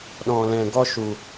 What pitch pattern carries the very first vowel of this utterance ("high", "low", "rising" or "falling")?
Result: low